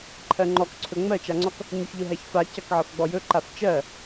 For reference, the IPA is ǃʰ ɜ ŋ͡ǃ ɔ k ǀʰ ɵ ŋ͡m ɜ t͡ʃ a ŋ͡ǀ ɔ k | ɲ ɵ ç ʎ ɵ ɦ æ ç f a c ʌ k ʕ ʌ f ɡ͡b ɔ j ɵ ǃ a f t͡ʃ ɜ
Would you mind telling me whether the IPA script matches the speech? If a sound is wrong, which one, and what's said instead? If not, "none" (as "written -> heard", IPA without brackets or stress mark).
none